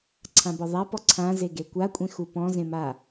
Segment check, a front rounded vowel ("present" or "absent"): absent